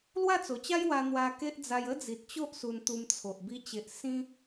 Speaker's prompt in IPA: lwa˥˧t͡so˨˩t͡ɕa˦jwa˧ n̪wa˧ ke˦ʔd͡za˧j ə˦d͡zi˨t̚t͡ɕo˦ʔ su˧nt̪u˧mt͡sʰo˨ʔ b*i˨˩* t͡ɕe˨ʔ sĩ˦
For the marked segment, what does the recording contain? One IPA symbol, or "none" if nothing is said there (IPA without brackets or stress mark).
i˧